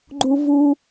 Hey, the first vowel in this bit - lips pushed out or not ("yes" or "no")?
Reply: yes